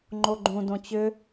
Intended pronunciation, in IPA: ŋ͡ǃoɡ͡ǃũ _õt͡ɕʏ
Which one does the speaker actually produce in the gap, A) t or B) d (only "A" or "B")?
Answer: B